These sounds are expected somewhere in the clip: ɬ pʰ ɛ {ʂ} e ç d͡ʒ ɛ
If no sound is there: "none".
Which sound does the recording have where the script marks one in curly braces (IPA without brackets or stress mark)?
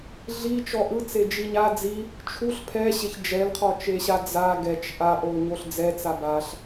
ɕ